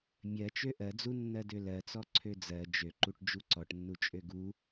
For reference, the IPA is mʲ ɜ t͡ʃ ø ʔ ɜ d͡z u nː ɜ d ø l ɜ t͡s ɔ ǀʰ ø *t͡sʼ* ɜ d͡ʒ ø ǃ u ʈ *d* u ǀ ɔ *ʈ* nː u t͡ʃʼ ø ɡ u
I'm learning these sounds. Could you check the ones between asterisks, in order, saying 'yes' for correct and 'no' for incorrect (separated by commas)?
no, no, yes